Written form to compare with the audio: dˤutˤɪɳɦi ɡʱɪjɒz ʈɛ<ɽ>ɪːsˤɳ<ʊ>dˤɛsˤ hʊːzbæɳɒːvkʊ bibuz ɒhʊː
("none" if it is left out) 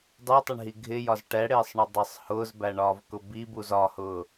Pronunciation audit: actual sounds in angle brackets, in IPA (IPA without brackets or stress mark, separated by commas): ɽ, ʊ